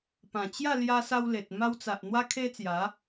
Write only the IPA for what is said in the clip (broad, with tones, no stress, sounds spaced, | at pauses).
p ã˨˩ t͡ɕ j a˥˧ l j a˧ s a˧ w l e˨ t̚ m a˧ w t͡s a˨ ʔ n̪ w a˦ kʰ e˦ t͡s j a˨˦